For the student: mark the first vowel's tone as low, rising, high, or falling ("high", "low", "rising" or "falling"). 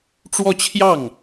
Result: falling